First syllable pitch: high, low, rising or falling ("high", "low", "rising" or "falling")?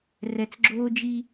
low